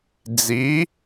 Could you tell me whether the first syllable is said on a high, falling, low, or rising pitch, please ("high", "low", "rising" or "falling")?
rising